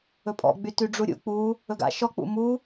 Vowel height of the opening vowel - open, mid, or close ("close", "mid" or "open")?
mid